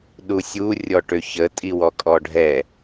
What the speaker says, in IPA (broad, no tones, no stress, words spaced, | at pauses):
ɗusʲu rʲɔʈøçə tʼiwɔkʼɔɖʱɛ